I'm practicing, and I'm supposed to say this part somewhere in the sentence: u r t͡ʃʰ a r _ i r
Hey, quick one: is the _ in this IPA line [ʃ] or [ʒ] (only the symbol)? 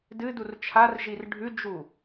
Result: ʒ